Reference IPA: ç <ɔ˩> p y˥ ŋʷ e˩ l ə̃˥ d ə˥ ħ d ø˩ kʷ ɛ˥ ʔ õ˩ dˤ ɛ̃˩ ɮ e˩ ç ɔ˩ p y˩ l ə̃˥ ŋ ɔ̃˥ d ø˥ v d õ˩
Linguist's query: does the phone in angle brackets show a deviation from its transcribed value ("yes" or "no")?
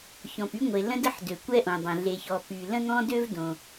yes